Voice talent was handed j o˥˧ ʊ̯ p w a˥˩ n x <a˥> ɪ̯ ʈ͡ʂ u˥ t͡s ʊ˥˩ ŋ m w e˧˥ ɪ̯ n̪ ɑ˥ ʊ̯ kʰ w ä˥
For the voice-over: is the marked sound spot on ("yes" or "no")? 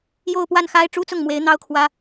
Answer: yes